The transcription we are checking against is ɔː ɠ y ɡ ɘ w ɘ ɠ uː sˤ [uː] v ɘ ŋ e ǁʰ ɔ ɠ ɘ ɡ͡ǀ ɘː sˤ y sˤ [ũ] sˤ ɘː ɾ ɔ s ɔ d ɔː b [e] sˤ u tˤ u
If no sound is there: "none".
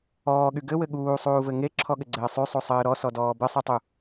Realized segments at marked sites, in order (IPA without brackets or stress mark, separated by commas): uː, u, ɘ